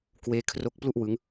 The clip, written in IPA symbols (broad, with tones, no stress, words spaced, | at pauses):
kweː˦˥ kʰro˦˥k̚plu˥˩ʔ wɯ˦˥ŋ